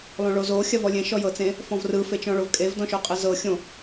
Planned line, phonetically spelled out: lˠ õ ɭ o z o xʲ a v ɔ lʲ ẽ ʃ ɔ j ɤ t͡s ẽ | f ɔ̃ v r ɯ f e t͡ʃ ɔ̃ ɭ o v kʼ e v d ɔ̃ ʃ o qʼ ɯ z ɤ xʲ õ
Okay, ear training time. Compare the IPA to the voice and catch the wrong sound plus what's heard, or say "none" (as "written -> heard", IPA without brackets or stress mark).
none